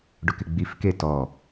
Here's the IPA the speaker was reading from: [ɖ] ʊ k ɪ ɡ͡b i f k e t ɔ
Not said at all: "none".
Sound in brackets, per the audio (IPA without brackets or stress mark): ɖ